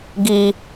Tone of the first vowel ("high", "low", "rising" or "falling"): low